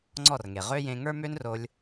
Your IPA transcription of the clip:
ŋ͡ǀ ɔ˦˨ r ŋ e˨ ʁ ø˦ j ẽ˧ ŋ ə˞˦ m ø˦ n r o˧ lʲ

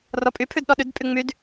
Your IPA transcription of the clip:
r ɔ pʼ y pʰ ʉ d ɗ ɔ ɗ ʉ d pʼ y ŋ͡m y d

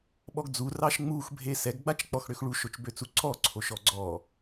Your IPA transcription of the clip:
ɓ ɔ ɡ d͡z u r ɑ ʃ ŋ͡m u x bʱ e s ɛ ɡ ɡ͡b a t͡ʃ k͡p ɔ x ɽ ø x ɭ u ʃ o t͡ʃ b ø t͡s u ǀ ɔ ǀʰ o ʃ ɔ ɡ͡ǀ ɔ

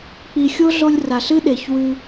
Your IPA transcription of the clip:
k͡p i˨ xʲ o˦ ɮ o˧ lʲ r a˨ ɬ ɨ˦ ɗ e˨ ç w ʉ˧

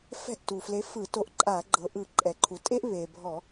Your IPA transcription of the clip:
f ɛ̤˥˩ ʔ t u˩ f l e˨˥ f ɯ˧˩˧ t o˨˥ ʔ ǃʼ a˧˩˧ ɡ͡ǃ ɤ˩ ʔ ɯ˧˩˧ ǃʼ ɛ˩ ǃʰ u˩ tʼ e˥ ʔ β e˩ bʱ ɔ˧˩˧

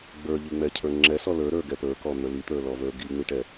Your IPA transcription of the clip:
ɡ͡b ə˞ ʎ i ŋ͡m ɛ cʰ ə˞ ŋ͡ǁ ɛ s ɔ l ə˞ ɾ ə˞ ɡ ɛ p ə˞ k ɔ n̪ ə˞ l i t̪ ə˞ l ɔ v ə˞ ɡ i ŋ͡m i ʈ ɛ

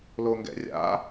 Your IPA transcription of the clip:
l o ŋ ɡ ɛ̰ rʲ a̰

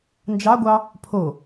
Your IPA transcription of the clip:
n d͡ʒ ɑ ɡʷ ɑ | pʰ o

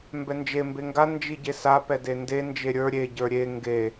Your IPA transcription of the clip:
m b ɛ n d͡ʒ e m b e ŋ ɡ a n d͡ʒ i ɟ e s a p ɛ d e n d e n d͡ʒ e ɾʲ ə˞ ɾʲ e ɟ ə˞ ɾʲ e ŋ ɡ e

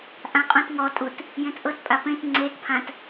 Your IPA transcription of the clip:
ʔ ã qʼ ũ t ŋ ɔ tʼ u t | j ẽ t ʔ ɤ t pʼ a p ẽ t ŋ͡ǀ e t pʰ ã t

